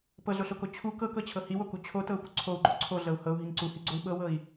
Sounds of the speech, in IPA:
p ɤ ɮ o ɬ o k o t͡ɕʰ u k ɤ k ɤ t͡ɕʰ ɤ h i w o k u t͡ɕʰ o t ɤ u̯ p u ǀʰ o u̯ ɡ͡ǃ o ǀʰ o ɮ ɤ u̯ h ɤ u̯ ɦ i ŋ ǀ u h i ɡ͡ǀ o i̯ ɓ ɤ w ɤ i̯

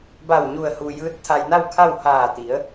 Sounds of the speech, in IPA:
b a˧˩ w ɲ u˧˩ ə̯ h u˩ j ɯː˧˥ t̚ t̪ʰ a˧ j n a˥˨ w kʰ a˥˨ w h aː˧˩ t̪ i˩˧ ə̯

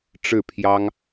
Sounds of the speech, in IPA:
ʈ͡ʂ ɻ̩˥˩ pʰ j ɑ˥ ŋ

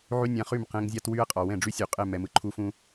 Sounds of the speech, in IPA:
ʕ y˦ nʲ ã˧ χ y˦˨ m q ɛ̃˧ ŋ zʲ a˦ t w y˦ ɐ̯ qʼ ɒ˨ w ɛ̃˦˨ ɖ͡ʐ y˦ sʲ u˨ qʼ ɛ˦˨ m ɛ˨ m ɯ˨ ǃʰ u˧ f ũ˦

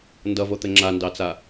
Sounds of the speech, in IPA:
n d ʌ v o t̪ ɘ ŋ͡ǁ a n d ɑ t͡s a

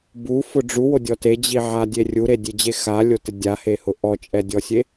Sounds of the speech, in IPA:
b u f ʊ ɖ͡ʐ u w o dʲ ɔ t e d͡ʑ i ʕ a dʲ e rʲ u ɾ e dʲ e d͡ʑ e x a lʲ o t ɪ dʲ a h e h ʊ ʔ ɔ t͡ʃʼ ɛ dʲ ɔ sʲ e

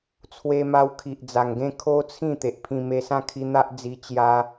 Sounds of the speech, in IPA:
t͡sʰ w e˧ m a˧ w kʰ i˨ ʔ d͡z a˨˩ ŋ ɡ ẽ˥˧ kʰ o˦ t͡sʰ ĩ˥˧ t̪ e˨ ʔ pʰ ĩ˧ m e˧ s ã˥˧ kʰ i˧ n̪ a˦ ʔ d͡z i˧ t͡ɕ j a˧

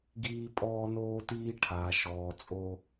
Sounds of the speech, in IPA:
ɡ iː˦ pʼ ɔː˦ n oː˦ t iː˦ ʈʰ aː˨ ʃ ɔː˨ t͡sʼ o˦

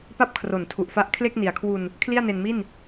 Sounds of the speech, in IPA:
p a˥˩ p̚ kʰ r o˨˩ n tʰ u˨˩ ʔ f a˦˥ ʔ kʰ l e˥˩ k̚ n i˨˩ a̯ kʰ w u˧ n | kʰ l i˥˩ a̯ n e˧ n m i˥˩ n

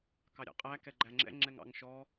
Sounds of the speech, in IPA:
k ɑ ɾʲ ɑ̰ qʼ æ k ɛ ɡ͡ǃ æ ŋ͡ǁ ɛ̰ ŋ͡ǁ ɛ ŋ ɑ̰ ŋ ʃ ɔ

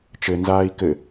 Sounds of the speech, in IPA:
t͡ʃ ɘ n z aː i̯ k ɘ

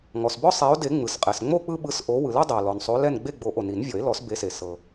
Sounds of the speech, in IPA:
ŋ ɔ˩ s b ɔ˦ sˤ ɛ˨˦ o̯ d e˨˩˦ ŋ͡m ɯ˩ s qʼ ɛ˩ s ŋ͡m o˥˨ k͡p ɯ˦ ɓ ɯ˨˦ s ʔ o˨˦ w ɯ˩ l ɛ˦ dˤ ɛ˩ o̯ l ɔ˩ n sˤ o˨˦ l ɛ˥˨ n ɡ͡b e˥˨ ɡ͡b o˨˩˦ ʔ o˩ n i˨˩˦ n vʲ ɔ˨˩˦ e̯ l ɔ˨˩˦ s b e˨˦ s e˩ s ɤ˩

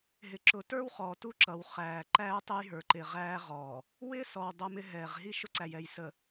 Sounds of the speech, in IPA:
ɦ ɪ˨ ǁ ʊ˨ t ə˞˦ w χ ɔː˨ t u˦ ǁ ʌ˨ w χ æː˨ ǃ æː˦ tˤ ɛ˦ j ɦ ə˞˨ ǃ ɪː˨ ʁ æː˦ ʁ ɔː˨ | w ɪː˦ s ɔ˨ w dˤ ʌ˦ m ɪ˦ ɦ ɛː˨ ʁ ɦ i˦ ʃ ʊ˦ ǀ æ˨ j ɛ˨ j s ə˨

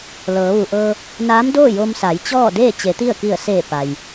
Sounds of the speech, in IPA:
l ɤː˩˧ ʋ u˩ ʔ ɤː˧ | n aː˧˥ m d oː˥˨ j o˧ m s a˩˧ j t͡ɕ ɔː˥˨ d eː˥˨ t͡ɕ e˩˧ t̪ i˥˨ ə̯ k i˧˩ ə̯ s eː˧˩ p a˩ j

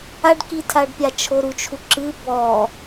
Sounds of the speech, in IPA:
a ɖ k i tʰ a ɖ pʲ a t͡ʃʰ o ɾ u t͡ʃʰ u ǁ ɨ b ɔ

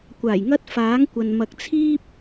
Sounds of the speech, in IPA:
kʷ aː˨˩ j ŋ ɐ˥ t̚ f aː˨˥ ŋ kʷ ɐ˨ n m ɐ˧ k̚ t͡sʰ iː˥ p̚

